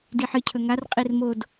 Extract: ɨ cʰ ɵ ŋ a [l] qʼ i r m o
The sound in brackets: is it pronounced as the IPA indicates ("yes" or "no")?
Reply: no